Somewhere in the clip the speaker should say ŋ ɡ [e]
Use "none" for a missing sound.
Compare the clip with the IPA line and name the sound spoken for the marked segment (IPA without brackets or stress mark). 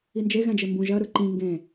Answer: ẽ